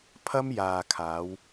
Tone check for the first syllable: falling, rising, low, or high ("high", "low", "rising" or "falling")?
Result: high